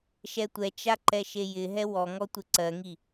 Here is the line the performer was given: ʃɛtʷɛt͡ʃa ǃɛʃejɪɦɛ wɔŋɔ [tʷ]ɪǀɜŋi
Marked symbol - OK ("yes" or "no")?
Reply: yes